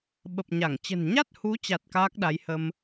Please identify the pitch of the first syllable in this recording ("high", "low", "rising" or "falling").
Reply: low